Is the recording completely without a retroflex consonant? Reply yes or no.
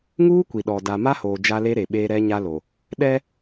yes